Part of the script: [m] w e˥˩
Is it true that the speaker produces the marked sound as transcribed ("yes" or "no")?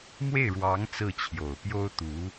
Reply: yes